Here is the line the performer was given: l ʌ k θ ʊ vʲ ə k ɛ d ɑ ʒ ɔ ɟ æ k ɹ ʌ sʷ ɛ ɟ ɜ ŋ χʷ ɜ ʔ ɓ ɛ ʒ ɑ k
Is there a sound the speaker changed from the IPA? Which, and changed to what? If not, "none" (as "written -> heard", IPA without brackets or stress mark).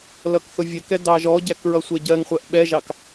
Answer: none